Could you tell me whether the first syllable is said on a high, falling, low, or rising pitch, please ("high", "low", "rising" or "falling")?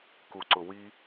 low